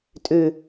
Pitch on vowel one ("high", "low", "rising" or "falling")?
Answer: low